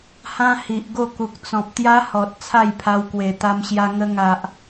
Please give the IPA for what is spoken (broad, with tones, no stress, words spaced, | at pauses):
hã˦hi˨ʔ ɡo˥˧ku˨k̚t͡sɔ̃˨p̚ t̪ja˦hɔ˨t̚ t͡sʰa˥˧jpʰa˧w kwe˨˩t̪a˧mɕja˧ ŋə˧ŋa˨ʔ